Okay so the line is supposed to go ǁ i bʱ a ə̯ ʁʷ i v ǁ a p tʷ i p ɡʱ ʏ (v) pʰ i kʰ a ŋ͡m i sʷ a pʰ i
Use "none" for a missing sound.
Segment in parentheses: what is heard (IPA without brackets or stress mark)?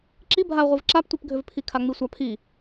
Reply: v